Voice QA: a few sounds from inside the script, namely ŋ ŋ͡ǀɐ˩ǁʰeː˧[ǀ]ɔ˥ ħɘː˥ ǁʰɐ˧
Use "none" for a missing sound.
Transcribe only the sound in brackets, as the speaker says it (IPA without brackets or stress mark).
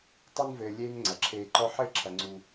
ǃ